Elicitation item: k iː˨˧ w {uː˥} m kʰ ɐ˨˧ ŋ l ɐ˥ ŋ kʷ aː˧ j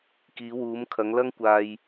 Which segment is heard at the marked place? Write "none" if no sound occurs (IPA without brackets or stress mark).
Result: uː˨˧